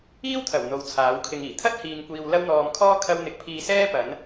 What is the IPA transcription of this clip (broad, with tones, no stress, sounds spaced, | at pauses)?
iː˥ w t̪ʰ ɐ˨˩ w n̪ o˨˧ w t͡sʰ aː˨˥ w kʰ ɪ˧ ŋ iː˨˩ t̪ʰ ɐ˥ t̚ h iː˨ ŋ kʷ iː˨ w l ɐ˥ w n̪ ɔː˧ m kʰ ɔː˥ kʰ ɐ˥ w n̪ ɪ˧ k̚ pʰ iː˧ s ɛː˥ p ɐ˨˥ n